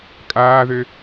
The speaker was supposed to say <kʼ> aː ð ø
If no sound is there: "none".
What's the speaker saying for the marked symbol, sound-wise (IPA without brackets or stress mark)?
kʼ